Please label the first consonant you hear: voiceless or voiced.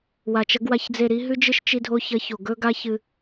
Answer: voiced